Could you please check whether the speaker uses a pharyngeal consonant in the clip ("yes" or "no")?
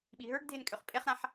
yes